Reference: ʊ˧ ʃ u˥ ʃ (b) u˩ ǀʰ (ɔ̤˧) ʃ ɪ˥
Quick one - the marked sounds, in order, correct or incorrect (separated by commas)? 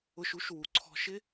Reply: incorrect, correct